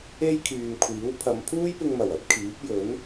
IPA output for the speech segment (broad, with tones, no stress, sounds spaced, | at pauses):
e˥ j kʰ yː˨ m kʷʰ iː˨˥ w pʰ ɐ˨˧ m pʰ uː˥ j p ɪ˧ ŋ m ɐ˨˩ w ɐ˨˥ p̚ kʰ iː˨˥ p̚ j ɵ˨˥ n